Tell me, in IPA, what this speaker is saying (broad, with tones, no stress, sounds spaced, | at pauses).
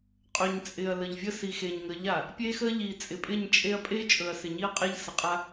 qʼ ɵ˨ ɲ t͡sʼ ɪ˨ ɐ̯ l ə˨ ʎ vʲ ə˦ s i˨ x e˨ ɲ ŋ ə˨˦ ʎ a˨ | pʲ e˦ x ə˦ ʎ i˨ t͡sʼ ɪ˨ pʼ ɪ˦˨ ɲ t͡ʃʼ e˦ ɐ̯ pʼ e˦ t͡ʃʼ ɵ˨ ɐ̯ s ɪ˨ ɲ i˦ ɐ̯ qʼ e˦ ʎ s ə˨ qʼ a˦